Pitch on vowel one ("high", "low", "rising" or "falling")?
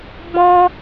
high